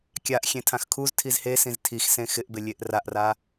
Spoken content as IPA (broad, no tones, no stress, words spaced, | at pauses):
kʲaʔ xʲẽtʰãxkʰuz tʰizhesĩz tʰixsẽ xɪʔbɪlʲeʔ raʔra